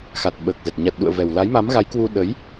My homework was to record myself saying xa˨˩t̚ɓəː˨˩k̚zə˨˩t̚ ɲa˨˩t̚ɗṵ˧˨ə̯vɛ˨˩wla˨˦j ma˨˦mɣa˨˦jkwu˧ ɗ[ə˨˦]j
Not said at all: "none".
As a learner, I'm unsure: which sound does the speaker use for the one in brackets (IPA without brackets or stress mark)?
ə˨˦